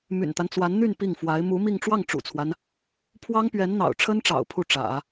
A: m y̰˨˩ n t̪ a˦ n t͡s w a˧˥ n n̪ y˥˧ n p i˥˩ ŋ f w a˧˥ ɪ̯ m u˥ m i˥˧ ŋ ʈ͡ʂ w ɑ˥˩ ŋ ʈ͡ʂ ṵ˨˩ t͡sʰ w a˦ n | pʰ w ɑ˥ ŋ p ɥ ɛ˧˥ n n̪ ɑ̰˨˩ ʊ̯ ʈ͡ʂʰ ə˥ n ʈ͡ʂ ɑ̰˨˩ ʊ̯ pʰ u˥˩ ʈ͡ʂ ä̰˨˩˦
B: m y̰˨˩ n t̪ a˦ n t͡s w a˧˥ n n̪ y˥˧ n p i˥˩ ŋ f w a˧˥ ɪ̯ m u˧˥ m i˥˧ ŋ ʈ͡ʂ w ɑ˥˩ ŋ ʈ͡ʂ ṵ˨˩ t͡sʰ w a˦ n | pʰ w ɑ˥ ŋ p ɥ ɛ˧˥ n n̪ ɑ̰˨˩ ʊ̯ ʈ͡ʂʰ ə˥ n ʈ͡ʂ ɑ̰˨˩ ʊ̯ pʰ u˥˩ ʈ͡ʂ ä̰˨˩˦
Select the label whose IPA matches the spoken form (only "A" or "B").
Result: B